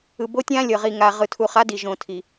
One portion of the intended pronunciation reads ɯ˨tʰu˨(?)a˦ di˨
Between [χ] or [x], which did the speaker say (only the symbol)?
χ